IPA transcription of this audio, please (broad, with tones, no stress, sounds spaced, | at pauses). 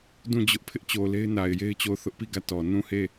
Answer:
d ũ˦˨ d͡ʑ ʊ˦ ʔ pʰ ɪ˦ ʔ t͡ɕ o˨ l e˦ ɪ̯ n a˨ ɪ̯ j e˦ ɪ̯ t͡ɕ o˦˨ ʊ̯ θ ʊ˦ ʔ p i˦˨ ɡ ä˦˨ t ɔ˨ n ũ˦˨ h e˦˨